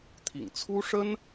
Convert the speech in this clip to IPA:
t̪ʰ ḭ˨˩ ŋ t͡sʰ u˥ ʂ ə˥ n

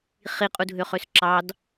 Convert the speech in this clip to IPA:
χ i qʼ u dʱ ø χ ø s ǁ ɑ d

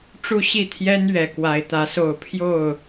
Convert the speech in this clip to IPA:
ʈ͡ʂ u˥˨ ɕ i˥˨ t̪ʰ j ɛ˦ n ɥ ɛ˨˩ k w a˨˦ ɪ̯ t̪ ä˨˦ s o˥˨ ʊ̯ pʰ j o˥˨ ʊ̯

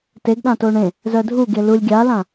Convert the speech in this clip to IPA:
t e ɡ ɗ ã t o ɳ ẽ | z œ dʱ u ɡ e l u lʲ ɡʲ a l ã

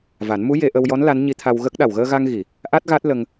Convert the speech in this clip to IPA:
v a˨˩˦ n m u˧˥ j e˧ ʔ ə˧ w j ɔ˧˥ n l a˧˥ n ɲ i˧˥ t̪ʰ a˧ w ɣ ə˦˥ k̚ ɗ a˨˩ w ɣ əː˧ ɣ a˧ ŋ ɣ i˨˩˨ | ʔ a˦˥ t̚ ɣ a˦˥ t̚ l ə˧ ŋ

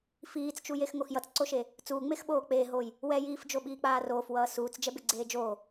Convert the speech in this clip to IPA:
f iː t͡s t͡ʃ u j e x ŋ o x j ʌ t͡s ǀ o ʃ e | t͡s uː ŋ͡m e x ɓ oː k͡p eː ɦ oː j | w ɛ j iː f d͡ʒ o ɓ iː k͡p aː r oː f w ʌː s uː t͡s d͡ʒ ɛ b e ɡ͡ǀ eː d͡ʒ oː

